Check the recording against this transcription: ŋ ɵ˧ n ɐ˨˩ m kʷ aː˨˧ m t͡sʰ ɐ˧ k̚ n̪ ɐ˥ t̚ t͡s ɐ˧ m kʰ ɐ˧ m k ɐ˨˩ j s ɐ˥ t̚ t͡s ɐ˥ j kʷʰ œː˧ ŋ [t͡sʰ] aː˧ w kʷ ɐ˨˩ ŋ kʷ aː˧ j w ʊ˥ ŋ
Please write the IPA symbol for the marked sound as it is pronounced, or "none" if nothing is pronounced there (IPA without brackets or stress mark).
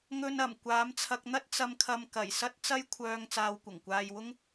t͡s